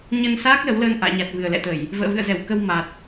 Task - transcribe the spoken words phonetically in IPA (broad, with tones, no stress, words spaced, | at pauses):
ɲə˧nsaː˦˥k̚ lə˨˦wləː˧nʔa̰ː˧˨ɲa˨˩t̚ vɨ˨˩ə̯lɛ̰˧˨t̪ə˧˩˨j | və̰ː˧˨vɨ̰˧˨ə̯zɛ˧˩wkə˧w ma˨˩t̚